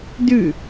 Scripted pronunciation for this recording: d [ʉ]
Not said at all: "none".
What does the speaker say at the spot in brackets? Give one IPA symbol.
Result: ʉ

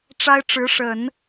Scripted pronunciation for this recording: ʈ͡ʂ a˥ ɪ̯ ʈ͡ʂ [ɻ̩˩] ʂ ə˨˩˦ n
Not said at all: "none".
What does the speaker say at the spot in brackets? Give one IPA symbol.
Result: ɻ̩˧˥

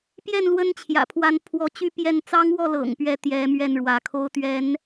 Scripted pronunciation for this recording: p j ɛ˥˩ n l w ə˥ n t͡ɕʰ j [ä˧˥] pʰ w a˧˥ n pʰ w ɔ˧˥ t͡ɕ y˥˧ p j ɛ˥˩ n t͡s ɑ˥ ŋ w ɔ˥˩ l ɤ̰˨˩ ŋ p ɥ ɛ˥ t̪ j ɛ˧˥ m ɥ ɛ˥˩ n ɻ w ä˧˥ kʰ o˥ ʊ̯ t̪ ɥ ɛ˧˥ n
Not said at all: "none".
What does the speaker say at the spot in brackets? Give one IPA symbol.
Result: ä̰˨˩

